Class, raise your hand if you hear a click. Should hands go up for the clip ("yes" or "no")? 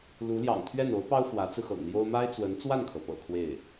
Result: no